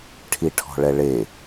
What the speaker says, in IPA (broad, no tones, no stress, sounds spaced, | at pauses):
ʈʰ i ʈʰ ɔ̤ ɭ ɛ ɭ e